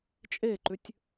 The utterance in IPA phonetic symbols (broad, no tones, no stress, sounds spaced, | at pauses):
t͡ʃʼ e ǃ ʉ tʲ